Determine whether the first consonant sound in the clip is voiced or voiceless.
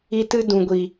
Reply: voiceless